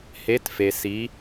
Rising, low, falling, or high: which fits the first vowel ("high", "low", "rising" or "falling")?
rising